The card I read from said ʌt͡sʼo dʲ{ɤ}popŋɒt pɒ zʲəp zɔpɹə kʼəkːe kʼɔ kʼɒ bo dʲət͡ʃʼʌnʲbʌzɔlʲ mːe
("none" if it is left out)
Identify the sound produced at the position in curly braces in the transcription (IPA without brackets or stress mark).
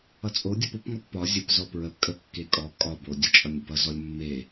ɤ